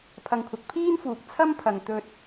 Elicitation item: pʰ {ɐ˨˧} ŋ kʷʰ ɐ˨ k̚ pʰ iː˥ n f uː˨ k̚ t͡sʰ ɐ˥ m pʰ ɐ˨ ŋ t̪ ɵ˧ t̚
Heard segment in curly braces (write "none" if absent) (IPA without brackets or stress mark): ɐ˨